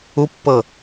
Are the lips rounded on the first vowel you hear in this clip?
yes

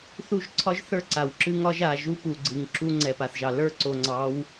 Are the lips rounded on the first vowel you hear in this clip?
yes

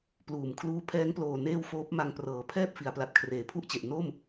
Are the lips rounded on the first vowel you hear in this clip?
yes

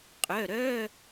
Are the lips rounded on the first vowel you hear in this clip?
yes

